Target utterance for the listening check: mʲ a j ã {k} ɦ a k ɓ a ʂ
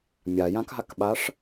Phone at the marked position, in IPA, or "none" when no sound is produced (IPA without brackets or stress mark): k